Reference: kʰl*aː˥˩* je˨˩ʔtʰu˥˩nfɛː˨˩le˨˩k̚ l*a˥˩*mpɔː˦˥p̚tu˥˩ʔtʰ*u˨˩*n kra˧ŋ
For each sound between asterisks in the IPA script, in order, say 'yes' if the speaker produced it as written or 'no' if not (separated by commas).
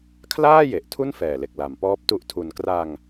yes, no, no